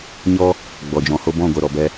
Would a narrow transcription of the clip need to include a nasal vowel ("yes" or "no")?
yes